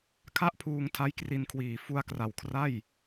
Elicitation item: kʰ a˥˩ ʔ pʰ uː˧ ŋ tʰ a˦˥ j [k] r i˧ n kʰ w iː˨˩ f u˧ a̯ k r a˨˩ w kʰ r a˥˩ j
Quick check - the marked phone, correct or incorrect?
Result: correct